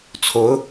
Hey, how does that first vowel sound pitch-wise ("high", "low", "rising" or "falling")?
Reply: rising